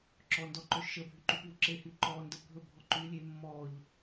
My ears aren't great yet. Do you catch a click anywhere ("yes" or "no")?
yes